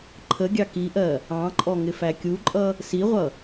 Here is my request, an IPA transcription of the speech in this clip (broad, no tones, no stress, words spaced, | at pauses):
ǃʰəɡʲɑ kiʔɜ | ɑ̃ǃʼɔ ŋɪfækʲuǃʼʌ | siʁʷʌ